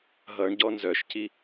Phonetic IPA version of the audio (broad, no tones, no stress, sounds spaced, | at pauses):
ɦ ʌ ɳ ɟ ɔ n z œ ʃ c i